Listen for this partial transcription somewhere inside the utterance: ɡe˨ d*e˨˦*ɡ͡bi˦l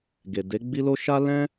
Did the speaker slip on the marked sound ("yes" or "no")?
no